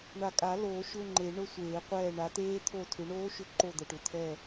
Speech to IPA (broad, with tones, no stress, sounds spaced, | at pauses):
ɳ a˨˩ kʼ a˨˩˦ l oː˨˩˦ ʃ ʏ˧˥˧ ŋ͡ǃ e˨˩˦ ɳ ʊ˦˥ sʷ eː˨˩˦ qʷ ɛː˦˨ ɳ a˨˦ t̪ eː˦˥ t̪ʰ o˦˨ tʰ ʏ˨˦ ɳ oː˦˥ ʃ ʏ˦˨ ǃ o˦˨ d̪ ə˨˩ ʈ ʏ˨˩ t̪ʰ ɛ˦˨